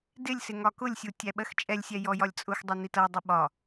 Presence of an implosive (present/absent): present